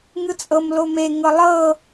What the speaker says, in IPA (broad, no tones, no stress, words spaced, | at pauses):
ŋɯt͡sʼɤm lome ŋɤlˠɤ